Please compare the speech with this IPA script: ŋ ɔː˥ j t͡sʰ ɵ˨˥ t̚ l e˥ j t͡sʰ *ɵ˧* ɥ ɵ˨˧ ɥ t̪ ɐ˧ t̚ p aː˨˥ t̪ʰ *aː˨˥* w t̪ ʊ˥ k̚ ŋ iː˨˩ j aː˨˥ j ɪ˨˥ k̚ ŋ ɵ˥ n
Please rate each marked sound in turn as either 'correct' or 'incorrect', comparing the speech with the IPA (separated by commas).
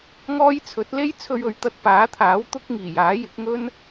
correct, correct